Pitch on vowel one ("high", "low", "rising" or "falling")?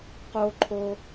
high